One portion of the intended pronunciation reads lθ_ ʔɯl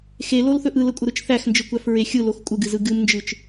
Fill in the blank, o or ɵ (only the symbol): ɵ